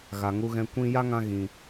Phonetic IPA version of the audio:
ɣa˨ŋu˧ɣɛ̃˧ kʷĩ˦ ja˦ŋã˧ ɣĩ˨

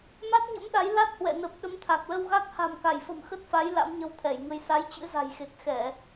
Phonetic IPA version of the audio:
ma˦˥t̚ɲə̰˧˥mɗa˨˦j la˦˥t̚hwɛ̰˧˨nə˨˩p̚ ɗə˨˦mt̪ʰa˨˩k̚lə˧wɣa˦˥k̚ ha̤˨˩mka˧˩jfə̤˨˩m xə˦˥t̚fa˨˦j la̰˧˥mɲə˧wt̪ʰɛ˧˩jŋə˧j sa˨˦jt͡ɕɨ̰˧˥ za̤˨˩jxe˨˩k̚xɛ˧˩˨

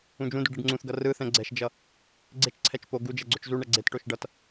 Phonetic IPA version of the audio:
ũd͡ʒũduɖ eɖŋ͡ǀũθɡʌ rɯθɛ̃ ɡ͡ǀɛʃd͡ʒʌ | ɡ͡ǀet͡ʃǀʰɛt͡ʃ po ɡud͡ʒɛ ɡ͡ǀot͡ʃzuɳɛ ɡ͡ǀetʈoʃ ɖʌt

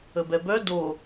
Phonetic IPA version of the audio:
əbɛbœ do

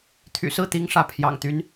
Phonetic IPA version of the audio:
t̪ʰy̰˨˩sɹ̩˥˩t̪i˧˥ŋ ʂä˥˩pʰjɑ̰˨˩ŋt̪y˧˥n

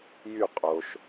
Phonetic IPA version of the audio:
jy qʼoʃ

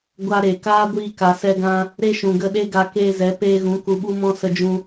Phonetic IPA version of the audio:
ɡʷa˧ ɾe˨kaː˦ ɡʷiː˧ka˨sɛ˧ɡã˧ | ɾe˦ʃũ˨ɡə˦˨ ɗe˦ɡa˧ keː˧zɛ˨˦ peː˧ɣũ˨˦ ku˨ɓu˧mɔ̃˧ sə˧d͡ʒũ˧

